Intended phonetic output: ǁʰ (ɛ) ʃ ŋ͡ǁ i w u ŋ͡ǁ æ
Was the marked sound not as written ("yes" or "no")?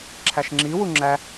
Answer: yes